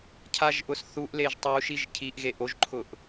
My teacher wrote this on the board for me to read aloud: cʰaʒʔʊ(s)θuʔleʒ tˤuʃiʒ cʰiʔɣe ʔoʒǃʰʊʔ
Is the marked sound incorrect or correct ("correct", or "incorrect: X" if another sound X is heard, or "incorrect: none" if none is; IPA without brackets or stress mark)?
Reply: correct